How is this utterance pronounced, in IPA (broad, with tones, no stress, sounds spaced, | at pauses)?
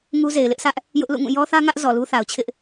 ŋ u˦ z e˨ ɪ̯ l ɪ˦ ʔ s ä˦ ʔ | j ʊ˦ ʔ l ṵ˦˨ ŋ ũ˦˨ j ɔ˦ θ ä˦ ŋ ä˦ ʔ z ɔ˨ l u˦ θ a˨ ʊ̯ t͡ɕʰ ɪ˦ ʔ